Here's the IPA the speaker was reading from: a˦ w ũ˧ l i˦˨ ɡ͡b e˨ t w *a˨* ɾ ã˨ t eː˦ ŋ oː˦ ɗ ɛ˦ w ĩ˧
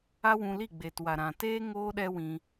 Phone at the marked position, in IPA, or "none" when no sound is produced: a˨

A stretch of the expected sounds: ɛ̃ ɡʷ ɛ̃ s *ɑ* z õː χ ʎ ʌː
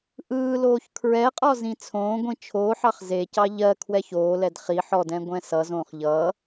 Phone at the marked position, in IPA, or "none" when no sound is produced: ʌ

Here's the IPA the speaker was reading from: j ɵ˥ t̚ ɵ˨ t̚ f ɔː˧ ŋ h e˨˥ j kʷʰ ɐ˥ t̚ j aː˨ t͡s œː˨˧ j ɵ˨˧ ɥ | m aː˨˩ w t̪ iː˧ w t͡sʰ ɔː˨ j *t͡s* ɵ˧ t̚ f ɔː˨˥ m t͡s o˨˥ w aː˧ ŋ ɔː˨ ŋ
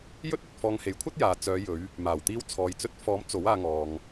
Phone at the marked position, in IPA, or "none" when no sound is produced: t͡s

